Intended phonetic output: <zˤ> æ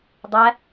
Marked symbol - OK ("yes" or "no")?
no